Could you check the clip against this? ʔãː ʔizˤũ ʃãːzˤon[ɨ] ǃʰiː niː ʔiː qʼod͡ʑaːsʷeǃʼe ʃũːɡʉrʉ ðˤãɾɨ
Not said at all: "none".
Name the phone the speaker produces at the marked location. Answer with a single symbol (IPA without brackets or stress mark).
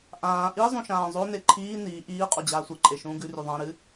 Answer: e